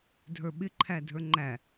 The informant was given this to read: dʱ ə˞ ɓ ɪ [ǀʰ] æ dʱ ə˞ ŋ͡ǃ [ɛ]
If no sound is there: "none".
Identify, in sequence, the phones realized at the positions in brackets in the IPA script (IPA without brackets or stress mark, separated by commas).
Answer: ǃʰ, æ